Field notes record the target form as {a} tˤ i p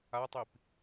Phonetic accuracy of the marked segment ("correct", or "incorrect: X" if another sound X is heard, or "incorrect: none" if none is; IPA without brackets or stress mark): correct